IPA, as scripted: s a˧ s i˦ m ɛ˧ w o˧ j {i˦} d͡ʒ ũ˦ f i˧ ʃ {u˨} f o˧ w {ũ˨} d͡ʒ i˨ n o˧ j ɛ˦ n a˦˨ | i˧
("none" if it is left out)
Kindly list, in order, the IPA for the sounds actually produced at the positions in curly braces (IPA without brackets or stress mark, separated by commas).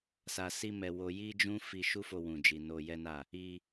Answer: i˦, u˦, ũ˨